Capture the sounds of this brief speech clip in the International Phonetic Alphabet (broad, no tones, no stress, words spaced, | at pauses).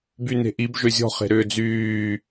byne̤ʔib ʒøzʲɔ̤ χe̤ɾʏːd͡zyː